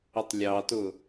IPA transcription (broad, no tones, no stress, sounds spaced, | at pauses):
ə tˤ lʲ ɑ t ʊ